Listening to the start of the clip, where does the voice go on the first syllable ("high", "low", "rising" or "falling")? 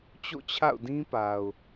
falling